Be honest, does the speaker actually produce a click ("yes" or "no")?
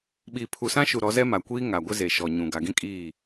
no